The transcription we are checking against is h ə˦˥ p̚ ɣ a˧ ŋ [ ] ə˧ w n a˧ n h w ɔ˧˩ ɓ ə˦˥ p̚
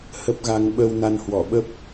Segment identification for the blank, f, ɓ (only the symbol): ɓ